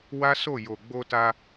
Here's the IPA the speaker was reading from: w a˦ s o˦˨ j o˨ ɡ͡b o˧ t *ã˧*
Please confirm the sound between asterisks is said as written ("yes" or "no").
no